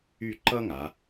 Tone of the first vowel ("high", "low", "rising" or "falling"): falling